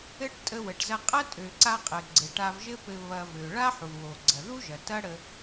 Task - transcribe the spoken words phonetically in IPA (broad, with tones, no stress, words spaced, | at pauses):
ɘ˧ʈ tʼə˧wə˩ʈzɐ˧ qʼɐ˥tʼø˩ǀa˧ qʼɘ˩ ɡ͡ǀɘ˩ʈa˧vʒɘ˥pɘ˧ βɐ˧vø˩ ɭa˥ħu˩wo˩ ɡ͡ǀɐ˩ ðu˥ʒɐ˩ tɐ˥ɽə˧